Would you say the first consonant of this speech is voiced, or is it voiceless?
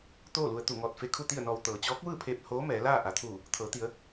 voiceless